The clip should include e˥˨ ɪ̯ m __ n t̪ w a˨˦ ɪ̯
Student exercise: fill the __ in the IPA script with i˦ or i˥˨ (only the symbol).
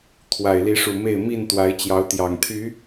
i˥˨